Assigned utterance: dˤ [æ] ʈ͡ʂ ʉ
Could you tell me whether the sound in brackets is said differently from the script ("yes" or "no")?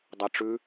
no